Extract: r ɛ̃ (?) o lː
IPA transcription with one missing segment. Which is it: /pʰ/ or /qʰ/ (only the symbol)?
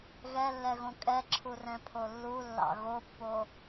pʰ